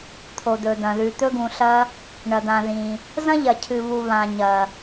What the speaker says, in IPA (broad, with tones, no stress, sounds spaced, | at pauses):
t̪ʰ o˨ d̪ ɵ˨ d̪ ɐ̃˨ ð ʉ˨ t̪ ɵ˥ ɡ ũ˨ ɬ ɐ˥ | ɳ ɐ˨ d̪ ã˨ ð ĩ˨ | z ɐ̃˥ ʎ ɐ˨ cʰ ɨ˨ β u˨ β ã˨ ɲ ɐ˨